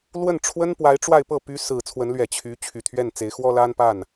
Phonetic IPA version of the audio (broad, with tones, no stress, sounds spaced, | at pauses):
l w ə˥˩ n ʈ͡ʂʰ w ə˥ n p w a˧˥ ɪ̯ ʈ͡ʂ w a˥˧ ɪ̯ p ɤ˥˩ p y˧˥ s ɹ̩˨˩ t͡sʰ w ə˧˥ n l ɥ ɛ˨˩ t͡ɕʰ y˧˥ t͡ɕʰ y˨˩ t̪ʰ ɥ ɛ˥˩ n t͡s e˧˥ ɪ̯ x w ɔ˥ l a˥ n p a˥˩ n